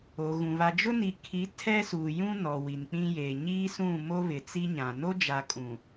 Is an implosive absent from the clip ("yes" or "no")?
yes